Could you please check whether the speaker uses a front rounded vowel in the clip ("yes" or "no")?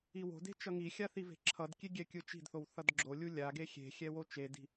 no